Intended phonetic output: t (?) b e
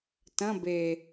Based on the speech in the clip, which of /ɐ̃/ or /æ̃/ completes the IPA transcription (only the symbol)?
ɐ̃